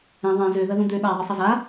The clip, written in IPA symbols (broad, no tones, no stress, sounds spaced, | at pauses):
ɛ̃ ðˤ ɛ̃ z ø ð ɐ ð ũ d̪ ø ɗ a ðˤ ɨ sˤ ɐ z a